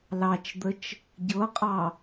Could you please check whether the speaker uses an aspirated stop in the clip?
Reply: no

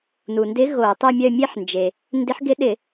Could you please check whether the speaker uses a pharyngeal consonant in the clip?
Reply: yes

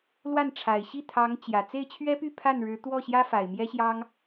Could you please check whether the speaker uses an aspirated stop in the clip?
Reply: yes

